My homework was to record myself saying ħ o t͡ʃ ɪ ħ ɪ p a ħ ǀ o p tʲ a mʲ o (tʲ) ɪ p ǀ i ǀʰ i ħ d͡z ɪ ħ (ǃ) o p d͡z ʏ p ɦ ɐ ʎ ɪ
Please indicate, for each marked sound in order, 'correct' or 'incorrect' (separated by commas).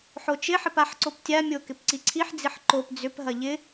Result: incorrect, correct